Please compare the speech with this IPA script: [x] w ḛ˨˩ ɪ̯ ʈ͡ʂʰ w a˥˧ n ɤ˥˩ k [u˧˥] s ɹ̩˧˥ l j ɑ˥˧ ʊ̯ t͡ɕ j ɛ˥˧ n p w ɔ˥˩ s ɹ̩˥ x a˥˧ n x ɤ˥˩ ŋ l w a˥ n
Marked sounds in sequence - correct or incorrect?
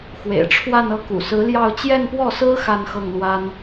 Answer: correct, incorrect: ṵ˨˩

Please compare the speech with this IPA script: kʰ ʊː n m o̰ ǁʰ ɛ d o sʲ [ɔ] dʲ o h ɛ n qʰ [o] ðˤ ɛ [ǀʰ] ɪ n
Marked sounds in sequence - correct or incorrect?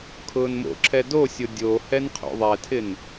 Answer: incorrect: ʊ, incorrect: o̰, incorrect: tʰ

